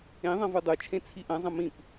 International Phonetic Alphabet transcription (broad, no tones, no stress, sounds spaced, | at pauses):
ẽ ðˤ ɐ̃ v u dˤ u t͡ʃʰ ẽ t͡sʰ i ʔ ɐ̃ zˤ ɐ̃ m ĩ p